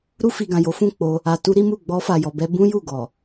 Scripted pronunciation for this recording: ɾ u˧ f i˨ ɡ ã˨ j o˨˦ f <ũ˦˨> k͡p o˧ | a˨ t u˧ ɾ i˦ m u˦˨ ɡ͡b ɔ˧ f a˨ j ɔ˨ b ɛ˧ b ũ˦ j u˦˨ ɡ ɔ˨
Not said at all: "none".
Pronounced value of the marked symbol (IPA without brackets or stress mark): ũ˦˨